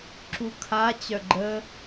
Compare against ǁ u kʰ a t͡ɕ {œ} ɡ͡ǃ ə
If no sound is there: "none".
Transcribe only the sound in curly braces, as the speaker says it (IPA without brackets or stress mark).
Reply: œ